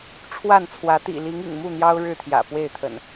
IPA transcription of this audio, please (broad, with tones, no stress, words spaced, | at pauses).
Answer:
ʈ͡ʂʰwa˥˨nt͡sʰwä˨˦ t̪ḭ˨˩ li˨˦ŋ ḭ˨˩ŋmu˥˨n̪jɑ˦ʊ̯ ɻɻ̩˥˨t̪ʰjä̰˨˩pwe˥˨ɪ̯t̪ʰə̰˨˩n